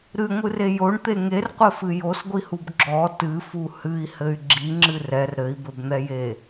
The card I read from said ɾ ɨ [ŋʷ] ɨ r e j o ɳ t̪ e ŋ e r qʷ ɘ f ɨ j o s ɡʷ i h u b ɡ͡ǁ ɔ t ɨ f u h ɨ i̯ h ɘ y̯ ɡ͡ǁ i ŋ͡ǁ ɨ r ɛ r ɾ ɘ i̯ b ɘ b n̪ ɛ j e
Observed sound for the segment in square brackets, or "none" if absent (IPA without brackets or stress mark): ŋʷ